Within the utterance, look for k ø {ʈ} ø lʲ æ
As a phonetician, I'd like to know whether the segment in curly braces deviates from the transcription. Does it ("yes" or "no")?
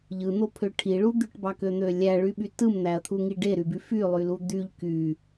yes